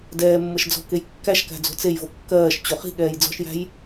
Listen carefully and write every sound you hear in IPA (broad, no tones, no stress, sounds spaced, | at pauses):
d ɛː mː ɤ ʃ d͡z ɔ̤ k e j kː æ ʃ k æ̤ d͡z o̤ t͡s e j v o kː ɜː ʃ t͡ɕ o χ i̤ ɠ ɛː j d͡z ɔ̤ ʃ j æ̤ j